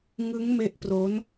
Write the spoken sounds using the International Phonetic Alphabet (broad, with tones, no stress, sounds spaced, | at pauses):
ŋ ɯ˦˥ ŋ m e˦˥ ʔ p r o˦˥ n